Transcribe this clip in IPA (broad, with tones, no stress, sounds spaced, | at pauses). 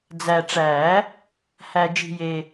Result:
d͡z æ˨ ʈ͡ʂ æ˨˩˦ | h æ˨ d͡ʒ i̤˨ j e˨